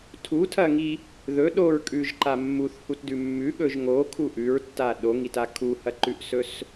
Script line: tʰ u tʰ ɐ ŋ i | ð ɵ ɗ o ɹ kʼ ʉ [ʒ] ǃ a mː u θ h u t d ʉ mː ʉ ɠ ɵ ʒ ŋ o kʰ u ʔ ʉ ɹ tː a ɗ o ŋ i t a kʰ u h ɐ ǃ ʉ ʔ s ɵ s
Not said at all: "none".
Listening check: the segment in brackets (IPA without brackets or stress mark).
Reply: ʒ